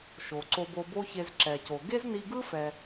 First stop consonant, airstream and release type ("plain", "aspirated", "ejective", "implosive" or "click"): click